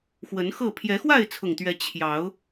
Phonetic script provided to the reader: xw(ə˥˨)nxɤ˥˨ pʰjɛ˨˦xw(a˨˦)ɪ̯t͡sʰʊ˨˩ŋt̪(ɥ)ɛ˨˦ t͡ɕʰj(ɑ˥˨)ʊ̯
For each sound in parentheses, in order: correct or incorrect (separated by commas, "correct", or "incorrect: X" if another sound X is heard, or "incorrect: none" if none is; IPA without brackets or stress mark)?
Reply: incorrect: ə˨˦, incorrect: a˥˨, correct, incorrect: ɑ˨˦